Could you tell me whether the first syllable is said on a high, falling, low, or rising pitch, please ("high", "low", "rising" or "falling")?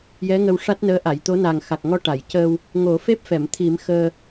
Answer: rising